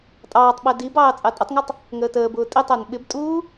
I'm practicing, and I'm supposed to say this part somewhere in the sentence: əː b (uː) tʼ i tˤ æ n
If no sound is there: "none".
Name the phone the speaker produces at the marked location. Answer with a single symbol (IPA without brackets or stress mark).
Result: ʊː